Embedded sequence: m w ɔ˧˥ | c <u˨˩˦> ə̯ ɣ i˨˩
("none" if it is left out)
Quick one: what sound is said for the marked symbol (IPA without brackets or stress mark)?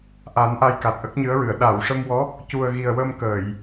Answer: u˨˩